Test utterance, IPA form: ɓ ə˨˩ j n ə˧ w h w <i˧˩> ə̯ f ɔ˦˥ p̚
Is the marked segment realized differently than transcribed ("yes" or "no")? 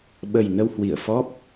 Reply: no